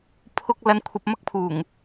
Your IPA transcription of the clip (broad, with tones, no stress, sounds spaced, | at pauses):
pʰ ʊ˥ k̚ l ɐ˧ n kʷʰ ɐ˧ p̚ m ɐ˥ k̚ pʰ uː˨˩ ŋ